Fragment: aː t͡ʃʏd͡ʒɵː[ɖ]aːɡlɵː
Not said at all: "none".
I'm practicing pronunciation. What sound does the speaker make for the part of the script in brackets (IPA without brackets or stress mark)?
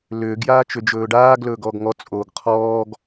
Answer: ɖ